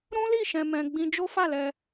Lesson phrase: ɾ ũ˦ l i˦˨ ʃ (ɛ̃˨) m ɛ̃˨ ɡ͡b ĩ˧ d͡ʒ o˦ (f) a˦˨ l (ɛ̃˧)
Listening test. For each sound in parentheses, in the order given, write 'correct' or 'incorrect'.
correct, correct, incorrect

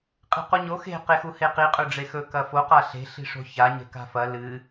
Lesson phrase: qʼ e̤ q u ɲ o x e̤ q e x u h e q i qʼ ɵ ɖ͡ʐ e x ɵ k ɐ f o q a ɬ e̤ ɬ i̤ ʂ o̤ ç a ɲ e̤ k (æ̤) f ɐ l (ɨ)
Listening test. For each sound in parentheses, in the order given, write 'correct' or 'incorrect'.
incorrect, correct

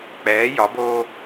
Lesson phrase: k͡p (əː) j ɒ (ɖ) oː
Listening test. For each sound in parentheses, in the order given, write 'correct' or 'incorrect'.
incorrect, incorrect

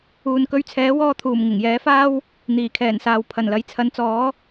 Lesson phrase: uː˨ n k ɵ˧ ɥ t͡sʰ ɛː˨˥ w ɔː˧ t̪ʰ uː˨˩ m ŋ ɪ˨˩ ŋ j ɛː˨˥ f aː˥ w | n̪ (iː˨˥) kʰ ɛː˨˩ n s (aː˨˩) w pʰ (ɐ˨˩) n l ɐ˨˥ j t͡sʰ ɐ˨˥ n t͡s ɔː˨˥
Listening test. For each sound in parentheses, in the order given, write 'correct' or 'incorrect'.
incorrect, incorrect, correct

